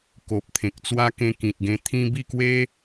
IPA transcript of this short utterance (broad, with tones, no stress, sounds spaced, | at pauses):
k o˨ p̚ t̪ʰ ẽ˨ k̚ t͡s w a˦ k ẽ˧ k ĩ˨ t̚ ɡ ẽ˧ t̪ʰ ĩ˦ b i˥˧ k w e˦